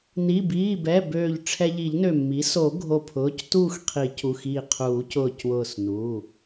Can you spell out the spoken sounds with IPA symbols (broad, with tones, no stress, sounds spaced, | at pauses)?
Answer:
n i˩˧˩ b iː˩˧˩ b ɛ˩˧˩ b øː˧˩ ʎ ʈ͡ʂʰ ɛ˧ ʎ i˨˩˦ ʎ n ø˧˩ mː i˩˥ s o˨˩˦ ɡʱ o˧˩ pʰ ʊː˩˧˩ c t uː˥˨ x qʰ i˨˩˦ c u˩˧˩ x iː˧˩ qʰ uː˨˩˦ c ʊː˧˩ c w ʊː˧˩ s n uː˩˧˩